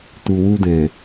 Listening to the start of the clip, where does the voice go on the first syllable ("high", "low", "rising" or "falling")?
low